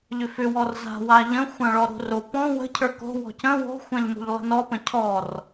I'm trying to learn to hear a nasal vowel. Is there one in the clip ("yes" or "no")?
yes